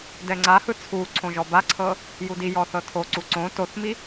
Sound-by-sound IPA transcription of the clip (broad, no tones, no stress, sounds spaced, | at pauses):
d ɛ ŋ͡ǀ a h ɯ t͡sʰ u ǀʰ õ ʒ ɔ b a ǀʰ ɤ | j u d i j ɔ θ ɤ tʰ o ǀ u ǀ õ t o θ m i